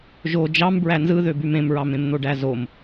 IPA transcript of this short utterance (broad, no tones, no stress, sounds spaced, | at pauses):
ʒ o d͡ʒ ɑ m b ɹ æ n z ɯ ð ø b y m ẽ m ɹ ɑ m ẽ m n̪ o ɖ æ z o m